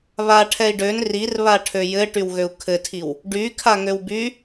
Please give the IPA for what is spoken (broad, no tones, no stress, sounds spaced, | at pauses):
β a ʈʰ ɛ i̯ ɖ ø n r i r β a ʈʰ ø j ɘ ʈ y w ɣ ø u̯ kʰ ɘ tʰ i w | ɖ y kʰ a ŋ ø w b y